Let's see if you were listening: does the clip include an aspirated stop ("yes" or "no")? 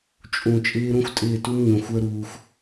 no